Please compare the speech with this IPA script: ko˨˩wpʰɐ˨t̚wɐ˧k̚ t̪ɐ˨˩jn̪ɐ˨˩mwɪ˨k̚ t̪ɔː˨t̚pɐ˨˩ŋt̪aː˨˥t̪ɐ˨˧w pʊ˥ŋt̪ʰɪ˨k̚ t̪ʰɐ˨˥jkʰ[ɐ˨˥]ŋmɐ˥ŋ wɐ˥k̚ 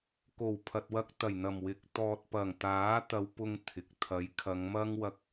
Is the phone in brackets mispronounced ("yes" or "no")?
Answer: yes